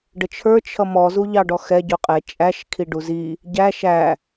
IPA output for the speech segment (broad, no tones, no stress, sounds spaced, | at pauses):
ɖ ə t͡ʃʰ ə˞ t͡ʃʰ ʌ m ɔ z u ʎ ɑ ɖ ɔ x ɛ ɟ ʊ qʼ ɛ t͡ʃʼ æ ʃ kʰ i ɖ u z i | ɟ æ ʃ æ